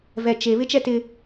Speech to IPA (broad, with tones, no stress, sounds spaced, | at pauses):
v ɛ˨ t͡ʃ e˨ β ɪ˦ t͡ʃ ɛ˦ t ɪ˦